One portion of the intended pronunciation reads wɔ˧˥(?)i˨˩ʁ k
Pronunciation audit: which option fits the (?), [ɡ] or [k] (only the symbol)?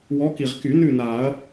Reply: k